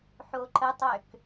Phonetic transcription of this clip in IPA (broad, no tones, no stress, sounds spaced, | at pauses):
ħ o ǃ ə tˤ ø k